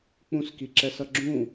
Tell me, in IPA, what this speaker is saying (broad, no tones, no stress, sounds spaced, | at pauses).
k͡p ũ s k i ǁ ɛ s ʌ ɡ͡ǁ ũ